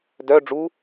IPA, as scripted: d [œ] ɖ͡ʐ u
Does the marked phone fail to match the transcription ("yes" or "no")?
no